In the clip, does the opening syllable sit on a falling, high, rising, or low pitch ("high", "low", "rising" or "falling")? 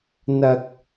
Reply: high